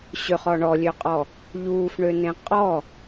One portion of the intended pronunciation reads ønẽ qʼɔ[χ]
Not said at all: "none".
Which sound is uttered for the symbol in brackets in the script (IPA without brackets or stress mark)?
none